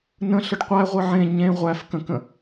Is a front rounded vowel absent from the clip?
yes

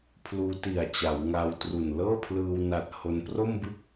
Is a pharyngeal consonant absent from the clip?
yes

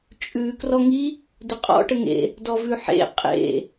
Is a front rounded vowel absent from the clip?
yes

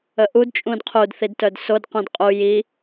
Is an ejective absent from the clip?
no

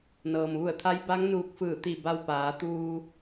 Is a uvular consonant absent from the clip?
yes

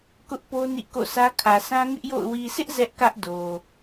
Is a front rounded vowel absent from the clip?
yes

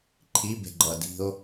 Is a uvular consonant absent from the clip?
yes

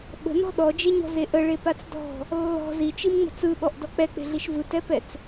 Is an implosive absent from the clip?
no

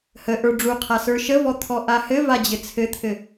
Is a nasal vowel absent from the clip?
yes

